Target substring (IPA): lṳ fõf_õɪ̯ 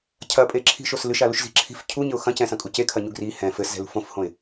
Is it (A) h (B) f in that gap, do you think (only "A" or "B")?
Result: A